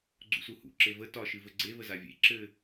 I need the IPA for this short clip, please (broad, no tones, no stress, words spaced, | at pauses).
ɡ͡ǀṵsuhṵ ǁevə tɒ ʃɨvɘɡ͡ǀe vəzavʲḛ ǁɘ